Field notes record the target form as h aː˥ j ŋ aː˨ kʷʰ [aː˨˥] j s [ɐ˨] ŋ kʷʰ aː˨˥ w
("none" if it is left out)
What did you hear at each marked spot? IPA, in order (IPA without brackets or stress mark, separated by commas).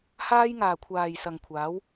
aː˨, ɐ˨